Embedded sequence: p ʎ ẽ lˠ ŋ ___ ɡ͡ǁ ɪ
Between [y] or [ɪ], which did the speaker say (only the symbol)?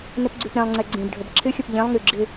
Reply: y